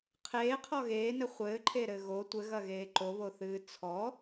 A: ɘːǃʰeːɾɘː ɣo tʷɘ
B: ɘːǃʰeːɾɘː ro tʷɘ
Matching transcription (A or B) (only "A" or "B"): A